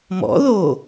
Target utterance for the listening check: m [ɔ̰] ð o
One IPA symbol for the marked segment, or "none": ɔ̰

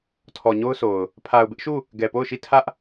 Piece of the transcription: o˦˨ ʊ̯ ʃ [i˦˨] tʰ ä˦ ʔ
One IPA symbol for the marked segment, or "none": i˦˨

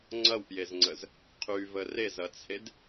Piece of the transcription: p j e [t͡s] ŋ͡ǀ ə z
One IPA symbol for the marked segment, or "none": z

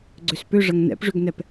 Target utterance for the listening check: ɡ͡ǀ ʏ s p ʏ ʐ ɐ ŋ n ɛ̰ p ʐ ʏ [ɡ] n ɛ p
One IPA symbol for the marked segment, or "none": ɡ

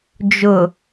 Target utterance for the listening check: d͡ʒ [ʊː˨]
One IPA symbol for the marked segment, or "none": ʊ˨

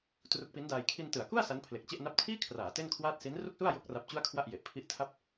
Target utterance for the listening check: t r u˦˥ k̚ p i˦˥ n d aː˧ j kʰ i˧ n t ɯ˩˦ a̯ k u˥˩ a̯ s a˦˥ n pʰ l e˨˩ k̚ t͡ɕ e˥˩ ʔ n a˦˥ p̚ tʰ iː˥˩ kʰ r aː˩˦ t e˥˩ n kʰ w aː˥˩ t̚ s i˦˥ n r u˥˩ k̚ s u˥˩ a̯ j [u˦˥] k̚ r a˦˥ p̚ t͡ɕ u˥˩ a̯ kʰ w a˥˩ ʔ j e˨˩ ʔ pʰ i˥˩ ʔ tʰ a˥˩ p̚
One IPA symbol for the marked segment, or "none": o˦˥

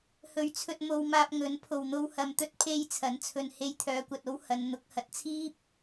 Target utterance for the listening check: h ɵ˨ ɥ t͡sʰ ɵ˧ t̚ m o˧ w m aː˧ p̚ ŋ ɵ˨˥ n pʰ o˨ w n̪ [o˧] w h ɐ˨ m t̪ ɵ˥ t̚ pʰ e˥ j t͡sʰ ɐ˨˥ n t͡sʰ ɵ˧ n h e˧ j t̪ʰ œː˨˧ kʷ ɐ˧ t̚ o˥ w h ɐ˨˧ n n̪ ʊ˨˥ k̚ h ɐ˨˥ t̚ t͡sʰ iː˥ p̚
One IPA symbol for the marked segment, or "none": o˧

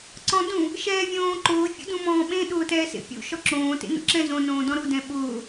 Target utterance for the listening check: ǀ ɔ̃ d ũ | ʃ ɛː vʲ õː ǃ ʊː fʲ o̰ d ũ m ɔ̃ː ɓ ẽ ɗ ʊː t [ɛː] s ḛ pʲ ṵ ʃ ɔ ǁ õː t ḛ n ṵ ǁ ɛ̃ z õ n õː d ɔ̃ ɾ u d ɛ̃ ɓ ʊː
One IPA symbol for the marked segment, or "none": ɛː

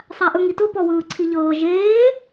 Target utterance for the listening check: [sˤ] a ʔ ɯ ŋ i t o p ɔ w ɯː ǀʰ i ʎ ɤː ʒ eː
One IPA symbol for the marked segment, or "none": sˤ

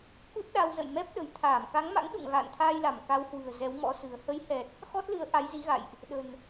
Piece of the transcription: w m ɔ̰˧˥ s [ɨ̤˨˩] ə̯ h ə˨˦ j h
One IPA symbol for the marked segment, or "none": ɨ̤˨˩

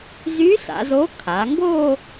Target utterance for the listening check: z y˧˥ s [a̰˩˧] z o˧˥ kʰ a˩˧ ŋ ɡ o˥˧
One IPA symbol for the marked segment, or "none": a̰˩˧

